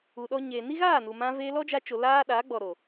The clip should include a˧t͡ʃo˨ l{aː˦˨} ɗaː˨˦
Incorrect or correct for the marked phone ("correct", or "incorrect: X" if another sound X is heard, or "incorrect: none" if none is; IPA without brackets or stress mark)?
incorrect: aː˦